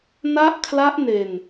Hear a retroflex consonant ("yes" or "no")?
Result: no